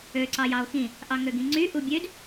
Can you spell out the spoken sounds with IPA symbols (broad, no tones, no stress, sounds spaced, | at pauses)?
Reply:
ø ǀ ɑ j ɑ o̯ x ĩ | ʔ ɑ ŋ ø ɡ ĩ ŋ͡ǀ y ʔ u bʲ ø d